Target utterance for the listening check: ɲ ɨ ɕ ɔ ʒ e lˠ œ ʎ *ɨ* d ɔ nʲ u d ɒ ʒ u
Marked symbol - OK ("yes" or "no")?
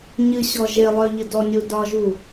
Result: yes